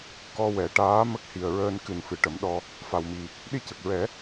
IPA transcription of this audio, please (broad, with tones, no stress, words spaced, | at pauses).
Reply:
kɔ˧wɛ˨˩˦ ʈaː˧˥ mə˦˥k̚hi˨˩ə̯ɹəː˧n kɨ˨˩nfɨ˨˩˨ ʈə˨˩˦mɗɔ˧ | fa˨˩wmi˨˩ | ɗi˧cə˨˩k̚ɹɛ˨˩˦